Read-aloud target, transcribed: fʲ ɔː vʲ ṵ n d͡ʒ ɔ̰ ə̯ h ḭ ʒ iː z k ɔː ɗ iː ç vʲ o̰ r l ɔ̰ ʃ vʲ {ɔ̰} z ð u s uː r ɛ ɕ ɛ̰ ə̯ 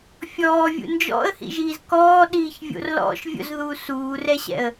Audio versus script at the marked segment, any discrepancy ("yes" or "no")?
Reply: yes